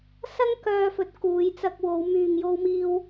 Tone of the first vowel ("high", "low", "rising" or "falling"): high